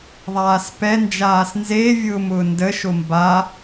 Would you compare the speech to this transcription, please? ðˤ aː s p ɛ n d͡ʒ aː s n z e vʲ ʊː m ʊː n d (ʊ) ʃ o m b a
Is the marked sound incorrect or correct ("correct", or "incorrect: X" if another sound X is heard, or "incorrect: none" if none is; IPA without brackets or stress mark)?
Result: incorrect: ə